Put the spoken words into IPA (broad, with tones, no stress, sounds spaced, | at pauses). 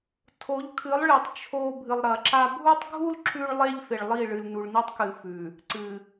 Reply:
tʰ o˨˦ ʎ kʰ ɨ˨˦ lˠ ɭ i˨ tˤ t͡ʃʰ o˦ bʱ ɨ˨ lˠ ɾ ɐ˨ ǁ a˦ bʱ u˦ tˤ ɡʱ u˦ l ǁ ʉ˦ ɭ lˠ e˦ ʎ f e˨ ɭ lˠ i˦˨ ɭ ɨ˨ l n u˨ ɭ n i˦ tˤ k ɨ˨ f ʉ˨ | ǀ ɨ˨